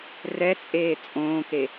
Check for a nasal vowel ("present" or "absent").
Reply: present